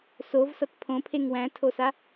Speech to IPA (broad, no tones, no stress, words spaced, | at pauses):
sovsʌt pʰõpʰeŋ wæ̃tʰosa